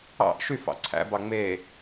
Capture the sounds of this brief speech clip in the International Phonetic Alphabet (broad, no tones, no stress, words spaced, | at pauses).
ɑ̰ʔ ʃyf ɑ̰ǀʰæ̰bɑ ŋ͡me